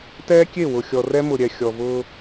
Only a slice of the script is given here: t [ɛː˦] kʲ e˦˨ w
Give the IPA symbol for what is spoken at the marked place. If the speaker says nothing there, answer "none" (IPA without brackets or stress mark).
ɛː˦